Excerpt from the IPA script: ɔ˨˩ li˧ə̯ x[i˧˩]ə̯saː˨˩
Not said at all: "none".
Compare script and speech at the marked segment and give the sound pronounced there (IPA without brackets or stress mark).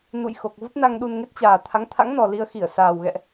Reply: i˧˩